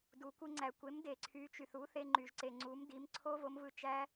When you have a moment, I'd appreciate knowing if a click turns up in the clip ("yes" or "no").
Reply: yes